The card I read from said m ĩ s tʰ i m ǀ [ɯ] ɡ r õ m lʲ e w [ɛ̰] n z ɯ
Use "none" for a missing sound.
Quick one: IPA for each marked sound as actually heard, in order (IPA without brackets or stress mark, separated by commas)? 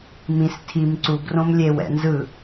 u, ɛ̰